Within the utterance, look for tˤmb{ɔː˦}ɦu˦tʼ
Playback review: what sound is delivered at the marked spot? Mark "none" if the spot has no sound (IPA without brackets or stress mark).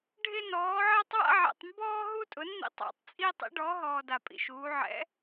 ɔː˦